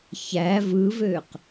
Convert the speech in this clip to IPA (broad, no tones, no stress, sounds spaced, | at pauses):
ç æ v ɯ v ø q